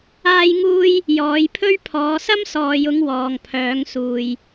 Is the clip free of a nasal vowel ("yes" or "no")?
yes